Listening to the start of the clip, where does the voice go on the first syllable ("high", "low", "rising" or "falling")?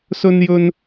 high